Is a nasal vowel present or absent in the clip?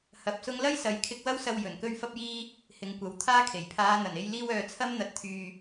absent